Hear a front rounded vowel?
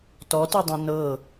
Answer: no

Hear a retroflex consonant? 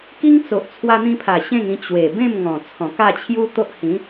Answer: no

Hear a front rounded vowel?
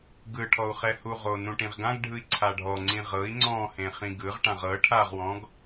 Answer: no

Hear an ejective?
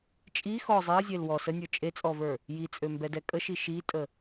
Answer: yes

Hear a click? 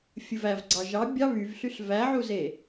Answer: yes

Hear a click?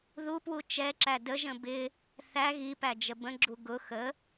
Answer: yes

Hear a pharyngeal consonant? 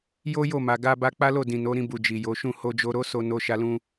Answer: no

